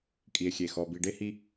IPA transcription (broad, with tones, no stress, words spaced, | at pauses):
kʼi˧e̯xʲe˧˩ xɔ˧ bi˧ɖe˥hi˥